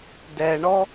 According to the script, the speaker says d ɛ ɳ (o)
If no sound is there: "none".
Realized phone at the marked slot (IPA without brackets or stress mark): ɔ